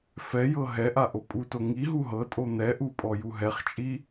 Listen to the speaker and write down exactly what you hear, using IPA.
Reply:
f ɛ j ɤ ɦ ɛ ʔ a ʔ o pʼ u t o ŋ i ɦ u ɦ ɤ tʼ o n̪ ɛ ʔ u pʼ ɔ j u ɦ ɛ χ t͡ʃʼ i

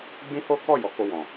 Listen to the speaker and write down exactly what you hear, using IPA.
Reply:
ɡ͡b ĩ˦ h o˦ k ɔ˦˨ j ɔ˨˦ k o˧ w ɔ̃˨

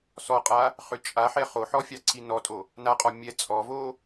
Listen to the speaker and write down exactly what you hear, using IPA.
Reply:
s ɔ qʼ a | χ ʏ t͡ʃʼ a ħ ɛ χ o ħ ɔ fʲ ɑ ǀʰ i n ɔ tʼ o | n a qʼ ɔ mʲ ɛ t͡sʼ ɔ v o

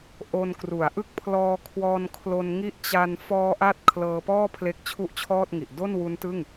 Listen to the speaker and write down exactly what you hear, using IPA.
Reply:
ʔ o˧ n k r u˩˦ a̯ ʔ ɯ˦˥ k̚ pʰ l ɔː˧ kʰ w ɔː˧ n kʰ l o˧ n ŋ i˦˥ ʔ t͡ɕ a˧ n f ɔː˧ ʔ a˦˥ t̚ kʰ l ɤː˧ p ɔː˥˩ pʰ l e˦˥ k̚ t͡ɕʰ u˥˩ ʔ t͡ɕʰ ɔː˥˩ t̚ ŋ i˨˩ ʔ d o˥˩ n w u˦˥ n t ɯ˥˩ ŋ

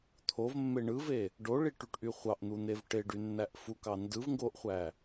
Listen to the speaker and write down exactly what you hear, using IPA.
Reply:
t̪ʰ o v mː e ɳ ɯ v e | ɖ o ɭ i ʈ y ʈ ʔ y χʷ ɑ ʔ n̪ u n̪ e v ʈ e ɖ y nː æ ʔ f u k ɑ n d ɯ v ŋ ɡ o ʔ χʷ æ

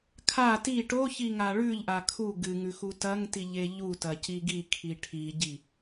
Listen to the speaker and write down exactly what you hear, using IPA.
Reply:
kʰ a t i ʈ o ç i ŋ a ɭ ʉ ʎ ʔ a kʰ u ɡ ɨ ŋ ʉ x u t ɐ ŋ t i ʎ e ʎ u t ɐ c i ɡ i kʰ i ʈʰ i ɟ i

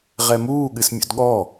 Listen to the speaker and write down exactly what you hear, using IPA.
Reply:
ʁ ɛ m uː ɠ ɨ s mʲ ṵ d ɠ ɔ

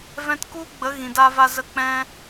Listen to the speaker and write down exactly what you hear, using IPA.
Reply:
v ɛ̃˧ t k u˦ ɡ͡b ə˨˦ ɣ ĩ˨ d a˧ v a˧ z ə˧ k͡p ɛ̃˧

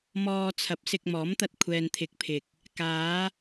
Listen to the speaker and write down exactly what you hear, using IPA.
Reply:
m ɔː˧ t͡sʰ ɐ˨˥ p̚ s ɪ˧ k̚ m ɔː˨˥ m t̪ ɐ˧ t̚ kʷʰ ɛː˨ n t̪ʰ ɪ˨˥ k̚ pʰ ɪ˨ k̚ | k aː˨˧

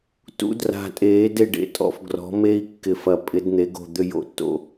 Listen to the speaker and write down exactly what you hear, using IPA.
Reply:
t ṵ˦˥ d r a̤˧˩ tʼ eː˨˥ d e˥˩ ɖ ḛ˧˩ tʼ ɔ̰˥˩ f ɡ r ɔ̤˨˥ m e˦˥ i̯ kː ɪ˧˩ f ɐ˧˩ pʼ ɪ˨˥ d n̪ e˨˥ ɡ o̤˥˩ d̪ ʏ˥˩ j o̰˥˩ tː o̰˥˩

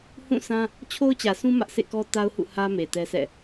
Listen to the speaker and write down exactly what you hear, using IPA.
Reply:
h ũ˦˨ s ã˦ | t͡ɕʰ o˦ ʊ̯ t͡ɕ ä˨ s ũ˦ m ä˦ ʔ s ḛ˦˨ k ɔ˦ t a˦ ʊ̯ h ṵ˦˨ h ä˦ m e˨ t ɛ˦ s ɛ̰˦˨

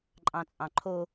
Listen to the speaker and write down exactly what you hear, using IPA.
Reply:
ǃʼ ɑ̃ t͡sʼ ɑ̃ ǃʰ o

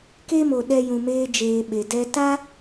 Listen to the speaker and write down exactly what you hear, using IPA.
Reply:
k e˦ m o˨ ɗ ɛ˧ j ũ˨ m eː˧ d͡ʒ eː˨ ɓ e˨ d ɛ˦ t a˦

